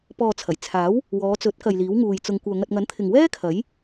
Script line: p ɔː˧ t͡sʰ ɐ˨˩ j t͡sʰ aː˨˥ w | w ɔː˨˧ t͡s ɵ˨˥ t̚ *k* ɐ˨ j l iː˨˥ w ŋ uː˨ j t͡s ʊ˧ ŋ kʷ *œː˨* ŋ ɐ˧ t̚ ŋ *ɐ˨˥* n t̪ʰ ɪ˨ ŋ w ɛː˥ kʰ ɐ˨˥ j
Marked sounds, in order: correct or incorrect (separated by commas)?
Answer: correct, correct, correct